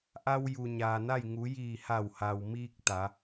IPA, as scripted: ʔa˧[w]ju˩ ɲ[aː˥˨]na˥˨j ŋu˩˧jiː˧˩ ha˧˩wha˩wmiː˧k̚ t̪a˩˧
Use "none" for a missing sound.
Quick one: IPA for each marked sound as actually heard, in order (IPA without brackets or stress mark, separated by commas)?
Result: w, aː˩